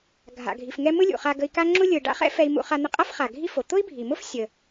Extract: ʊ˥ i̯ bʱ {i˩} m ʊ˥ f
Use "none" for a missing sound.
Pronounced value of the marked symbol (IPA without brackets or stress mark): i˩